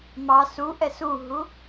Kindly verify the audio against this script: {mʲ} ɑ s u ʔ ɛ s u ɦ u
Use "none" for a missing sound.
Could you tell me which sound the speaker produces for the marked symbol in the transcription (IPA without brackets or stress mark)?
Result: m